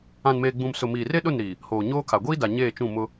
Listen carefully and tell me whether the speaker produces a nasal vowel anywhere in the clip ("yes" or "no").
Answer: yes